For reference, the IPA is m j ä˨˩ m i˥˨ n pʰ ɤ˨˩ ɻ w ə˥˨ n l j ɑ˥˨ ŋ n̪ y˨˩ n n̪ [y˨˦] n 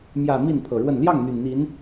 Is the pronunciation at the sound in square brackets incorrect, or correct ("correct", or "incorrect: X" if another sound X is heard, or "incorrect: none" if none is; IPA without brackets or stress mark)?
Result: incorrect: i˨˦